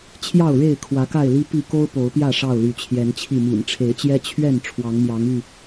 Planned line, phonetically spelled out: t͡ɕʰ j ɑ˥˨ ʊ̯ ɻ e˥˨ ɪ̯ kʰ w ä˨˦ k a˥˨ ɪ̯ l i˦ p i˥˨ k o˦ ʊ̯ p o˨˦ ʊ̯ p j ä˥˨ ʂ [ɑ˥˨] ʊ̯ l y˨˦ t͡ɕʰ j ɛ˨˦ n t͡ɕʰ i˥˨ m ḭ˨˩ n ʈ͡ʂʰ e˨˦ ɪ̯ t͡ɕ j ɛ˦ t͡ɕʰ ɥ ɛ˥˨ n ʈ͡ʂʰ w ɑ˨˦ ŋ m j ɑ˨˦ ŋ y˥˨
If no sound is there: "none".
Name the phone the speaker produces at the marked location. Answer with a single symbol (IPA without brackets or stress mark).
ɑ˥˨